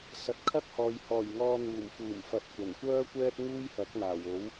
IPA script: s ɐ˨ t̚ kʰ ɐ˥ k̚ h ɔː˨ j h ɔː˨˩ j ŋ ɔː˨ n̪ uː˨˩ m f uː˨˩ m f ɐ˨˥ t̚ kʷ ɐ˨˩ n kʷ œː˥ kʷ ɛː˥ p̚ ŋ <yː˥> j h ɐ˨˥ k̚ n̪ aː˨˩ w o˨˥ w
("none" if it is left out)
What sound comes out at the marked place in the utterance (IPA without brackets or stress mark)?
uː˥